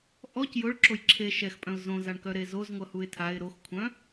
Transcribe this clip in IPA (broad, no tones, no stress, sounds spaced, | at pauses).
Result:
ʔ ɔ c j ʊ ɭ ǁ o j ǁʰ e ʃ ɛ x pʼ œ̃ ʊ̯ z õ z a ɳ k œ ɾ e z o z ŋʷ ʌ h u ɪ̯ tʰ a ɪ̯ ɾ o x kʷʰ œ̃